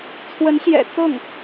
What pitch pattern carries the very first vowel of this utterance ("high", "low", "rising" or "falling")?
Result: rising